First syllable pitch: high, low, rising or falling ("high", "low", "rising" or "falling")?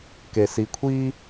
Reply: low